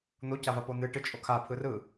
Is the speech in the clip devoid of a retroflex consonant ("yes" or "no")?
no